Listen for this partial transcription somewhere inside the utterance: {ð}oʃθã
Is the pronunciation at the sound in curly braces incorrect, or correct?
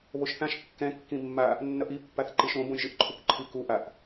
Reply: incorrect